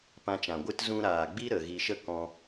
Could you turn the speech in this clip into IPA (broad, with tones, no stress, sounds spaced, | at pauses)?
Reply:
p ã˧ t͡ʃ ã˨ ɡʷ ɨ˦ t z ũ˧ ɾ aː˨ ɡ͡b i˦ ɾ ə˨ ɣ i˧ ʃ ə˦ k ɔ̃˧